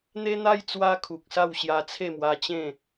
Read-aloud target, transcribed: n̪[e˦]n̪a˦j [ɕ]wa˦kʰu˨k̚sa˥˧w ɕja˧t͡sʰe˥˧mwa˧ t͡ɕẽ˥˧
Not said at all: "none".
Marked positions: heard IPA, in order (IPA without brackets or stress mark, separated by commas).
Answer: e˦, t͡s